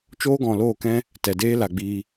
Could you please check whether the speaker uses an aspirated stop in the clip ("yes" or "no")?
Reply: no